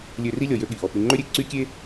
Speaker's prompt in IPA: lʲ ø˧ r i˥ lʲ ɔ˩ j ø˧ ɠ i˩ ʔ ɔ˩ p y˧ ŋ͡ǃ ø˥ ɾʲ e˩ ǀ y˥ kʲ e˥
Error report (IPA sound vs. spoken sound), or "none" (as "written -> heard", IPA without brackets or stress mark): none